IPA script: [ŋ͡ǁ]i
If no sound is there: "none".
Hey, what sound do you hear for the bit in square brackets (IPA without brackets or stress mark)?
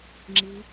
ŋ͡ǁ